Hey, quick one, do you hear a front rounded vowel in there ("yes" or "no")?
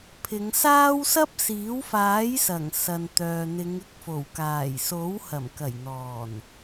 yes